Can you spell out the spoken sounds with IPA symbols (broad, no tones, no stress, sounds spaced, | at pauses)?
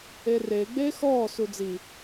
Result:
e r eː ɡ͡b eː x ɔː s u d͡z i